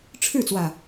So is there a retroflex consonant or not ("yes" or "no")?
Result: yes